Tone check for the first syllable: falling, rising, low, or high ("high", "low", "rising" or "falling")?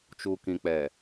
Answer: low